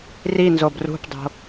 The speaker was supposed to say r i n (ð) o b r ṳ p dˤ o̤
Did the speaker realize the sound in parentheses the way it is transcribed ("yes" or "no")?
no